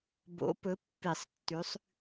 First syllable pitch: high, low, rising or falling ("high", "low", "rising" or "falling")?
rising